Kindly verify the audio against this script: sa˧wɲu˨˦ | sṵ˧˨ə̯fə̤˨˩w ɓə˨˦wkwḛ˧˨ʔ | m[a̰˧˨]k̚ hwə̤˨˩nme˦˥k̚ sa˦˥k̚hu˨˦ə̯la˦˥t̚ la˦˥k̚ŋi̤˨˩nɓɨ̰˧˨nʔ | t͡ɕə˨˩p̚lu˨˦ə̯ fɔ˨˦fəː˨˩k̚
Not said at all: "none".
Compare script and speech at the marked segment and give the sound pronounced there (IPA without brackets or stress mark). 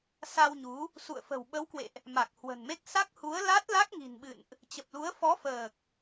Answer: a˨˩